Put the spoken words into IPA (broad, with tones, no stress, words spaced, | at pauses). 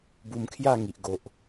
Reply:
bu˧mkʰja˥˧ŋi˨ʔ ɡo˨ʔ